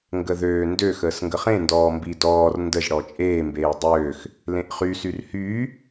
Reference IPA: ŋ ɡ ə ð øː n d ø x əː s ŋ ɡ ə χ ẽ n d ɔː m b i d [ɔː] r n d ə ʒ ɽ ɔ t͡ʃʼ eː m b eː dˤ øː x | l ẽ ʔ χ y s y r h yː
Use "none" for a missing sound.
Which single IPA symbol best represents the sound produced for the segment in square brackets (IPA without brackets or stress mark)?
ɔː